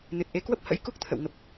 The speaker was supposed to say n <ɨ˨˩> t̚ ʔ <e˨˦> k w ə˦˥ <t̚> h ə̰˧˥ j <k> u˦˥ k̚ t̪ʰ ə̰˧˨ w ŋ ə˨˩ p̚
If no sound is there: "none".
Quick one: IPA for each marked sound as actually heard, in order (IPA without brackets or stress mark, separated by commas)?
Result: ɨ˨˩, e˨˦, p̚, k